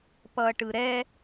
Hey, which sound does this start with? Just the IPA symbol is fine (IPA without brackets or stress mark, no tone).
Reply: p